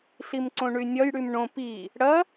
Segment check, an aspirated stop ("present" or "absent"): absent